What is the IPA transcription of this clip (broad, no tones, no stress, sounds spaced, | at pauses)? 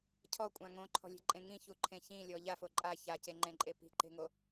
cʰ ɔ kʷʼ ã ŋ õ ǃʰ ɔ̤ lʲ e̤ ǃʼ ẽ ŋ ĩ ç u ǃʰ ẽ ç ĩ lʲ ɔ ʎ a f o ǃʼ a ç a c e ŋ͡ǃ ẽ ǃʼ e p i̤ ǃ e̤ ŋ o